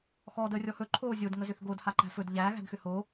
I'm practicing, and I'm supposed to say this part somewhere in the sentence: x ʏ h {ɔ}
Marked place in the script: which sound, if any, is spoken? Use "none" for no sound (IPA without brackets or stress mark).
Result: o